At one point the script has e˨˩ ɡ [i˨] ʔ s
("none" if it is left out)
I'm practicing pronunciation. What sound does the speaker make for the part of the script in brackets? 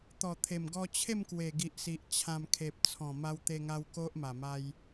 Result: i˨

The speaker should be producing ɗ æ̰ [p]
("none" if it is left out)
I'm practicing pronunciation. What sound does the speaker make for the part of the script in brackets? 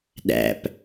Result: p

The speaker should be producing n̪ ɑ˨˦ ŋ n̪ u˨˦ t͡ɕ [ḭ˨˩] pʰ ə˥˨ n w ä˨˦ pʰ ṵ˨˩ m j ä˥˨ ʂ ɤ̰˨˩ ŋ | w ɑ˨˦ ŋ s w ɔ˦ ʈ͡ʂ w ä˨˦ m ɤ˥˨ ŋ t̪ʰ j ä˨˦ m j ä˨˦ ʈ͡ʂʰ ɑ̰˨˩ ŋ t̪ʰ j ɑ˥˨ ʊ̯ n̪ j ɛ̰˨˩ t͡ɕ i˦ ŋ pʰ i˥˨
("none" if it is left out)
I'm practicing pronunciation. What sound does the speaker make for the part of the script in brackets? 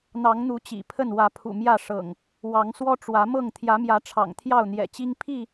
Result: ḭ˨˩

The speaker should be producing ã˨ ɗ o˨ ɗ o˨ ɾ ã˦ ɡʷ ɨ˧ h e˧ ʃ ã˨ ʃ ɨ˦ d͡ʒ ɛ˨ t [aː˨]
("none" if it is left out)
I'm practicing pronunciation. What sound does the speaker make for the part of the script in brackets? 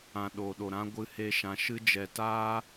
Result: aː˦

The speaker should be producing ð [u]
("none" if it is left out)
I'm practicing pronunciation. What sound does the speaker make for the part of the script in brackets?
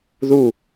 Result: u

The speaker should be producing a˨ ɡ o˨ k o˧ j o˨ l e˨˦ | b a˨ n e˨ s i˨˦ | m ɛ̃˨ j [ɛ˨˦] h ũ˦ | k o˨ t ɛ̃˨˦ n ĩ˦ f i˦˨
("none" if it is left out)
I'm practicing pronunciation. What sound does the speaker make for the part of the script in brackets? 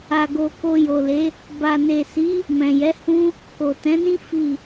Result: ɛ˨˦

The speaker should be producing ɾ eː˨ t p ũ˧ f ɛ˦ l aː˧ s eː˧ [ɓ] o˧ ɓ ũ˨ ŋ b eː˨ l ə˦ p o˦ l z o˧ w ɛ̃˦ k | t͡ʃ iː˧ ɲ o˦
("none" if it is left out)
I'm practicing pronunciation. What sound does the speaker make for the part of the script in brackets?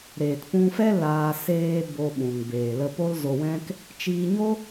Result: b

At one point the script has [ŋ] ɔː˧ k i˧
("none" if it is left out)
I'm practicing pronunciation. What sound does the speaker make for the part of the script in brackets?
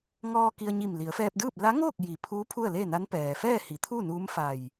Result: ŋ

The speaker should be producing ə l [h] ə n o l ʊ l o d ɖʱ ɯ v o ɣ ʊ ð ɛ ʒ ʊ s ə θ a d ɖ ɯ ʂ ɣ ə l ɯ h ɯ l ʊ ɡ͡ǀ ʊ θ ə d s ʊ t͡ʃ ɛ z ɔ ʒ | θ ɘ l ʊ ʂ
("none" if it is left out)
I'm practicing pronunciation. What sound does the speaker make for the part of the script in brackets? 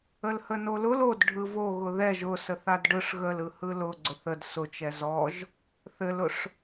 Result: h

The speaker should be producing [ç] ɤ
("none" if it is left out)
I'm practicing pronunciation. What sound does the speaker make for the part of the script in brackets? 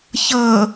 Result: ç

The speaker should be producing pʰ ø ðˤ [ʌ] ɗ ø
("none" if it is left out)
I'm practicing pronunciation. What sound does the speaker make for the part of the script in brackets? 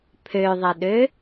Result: ə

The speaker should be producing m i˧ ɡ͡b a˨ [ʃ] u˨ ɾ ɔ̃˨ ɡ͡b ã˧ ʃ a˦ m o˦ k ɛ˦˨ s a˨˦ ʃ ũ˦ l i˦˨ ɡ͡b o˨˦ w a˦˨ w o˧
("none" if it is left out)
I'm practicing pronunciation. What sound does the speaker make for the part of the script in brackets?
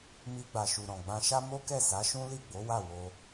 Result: ʃ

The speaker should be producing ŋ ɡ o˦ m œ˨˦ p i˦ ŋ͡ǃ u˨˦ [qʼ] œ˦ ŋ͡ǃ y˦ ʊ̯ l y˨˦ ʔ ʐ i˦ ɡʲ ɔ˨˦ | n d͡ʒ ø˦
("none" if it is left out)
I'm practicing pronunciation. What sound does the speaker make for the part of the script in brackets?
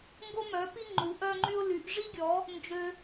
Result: ʔ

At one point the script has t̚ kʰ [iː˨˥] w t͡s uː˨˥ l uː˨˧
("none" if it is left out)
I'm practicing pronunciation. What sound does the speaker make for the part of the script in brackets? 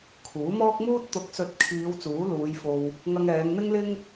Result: iː˨˧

